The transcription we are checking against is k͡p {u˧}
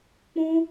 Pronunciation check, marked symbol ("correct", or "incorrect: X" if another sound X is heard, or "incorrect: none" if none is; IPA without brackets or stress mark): incorrect: ũ˧